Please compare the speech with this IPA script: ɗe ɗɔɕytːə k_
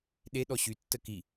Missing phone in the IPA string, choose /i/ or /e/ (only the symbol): i